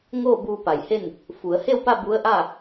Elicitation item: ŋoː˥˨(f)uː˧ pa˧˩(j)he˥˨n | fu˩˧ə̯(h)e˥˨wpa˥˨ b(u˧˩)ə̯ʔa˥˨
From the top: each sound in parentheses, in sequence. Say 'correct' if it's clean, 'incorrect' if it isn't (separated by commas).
incorrect, correct, correct, incorrect